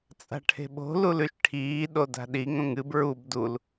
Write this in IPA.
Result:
t͡sʼ a̤ ʈʰ e̤ ɓ o̤ l u l ʉ ʃ ʈʰ iː ɗ o d a̤ ɗ i ŋ õ ŋ ɨ b ɹ u b d u l

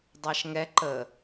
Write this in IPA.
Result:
dˤ ɑ ʃ ŋ ɛ ǃ ə

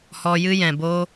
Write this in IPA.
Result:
h ɔ˧ j ɨ˦ j ɛ̃˨ b oː˦

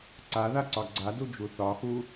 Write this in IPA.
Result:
ǀ a ð a ǀ ɒ ɡ͡ǀ a d u d͡ʒ u θ ɒ x u

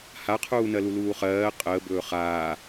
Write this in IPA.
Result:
h a qʰ uː n ɜ l u l uː χ ɜː qʼ əː b ɵː χ aː

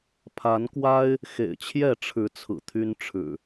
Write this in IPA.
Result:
pʰ a˨˦ n k w a˦ ɪ̯ | x ḛ˨˩ ɪ̯ t͡ɕʰ j ɛ˥˨ ʈ͡ʂʰ ɻ̩˨˦ t͡sʰ ɹ̩˨˩ t̪ʰ y˦ n ʈ͡ʂʰ ɻ̩˨˩

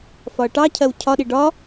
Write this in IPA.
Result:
f ɒ ɐ̯ ʈ ɑ cʰ ɜ w cʰ ɒ ɗ i ɖ ɒ

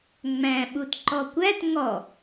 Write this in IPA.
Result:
ŋ͡m æ̃ ɓ u t ǃ ɔ kʷ æ t ŋ ɔ

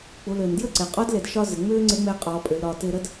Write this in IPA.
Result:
k͡p u˩˧ l ʏː˩ n d j ə˥ ǀ e˩ qʼ ɔ˧˥ d l e˩ d ʃ ɒ˧ z ɪ˩ ŋ͡m ʏː˥ ŋ͡ǀ e˧˥ ŋ͡m eː˧ qʼ ɔː˩˧ pʼ ʏ˩˧ l ɾ ɒː˩˧ t ɪː˧ ɾ ə˥ d

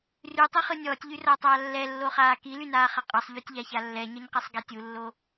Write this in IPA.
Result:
r y tˤ ɯ χ ɯ nʲ ɔː tʲ ʎ y r ʌː tˤ aː lː ɛ lː o χ aː k i l y n aː χ ʌ qʼ ʌ sˤ ʎ o tʲ ʎ a ç a lː ɛ ɲ ʌ ɲ q i sˤ ɡ ɛ tʲ u lː o

